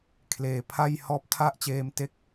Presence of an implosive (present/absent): absent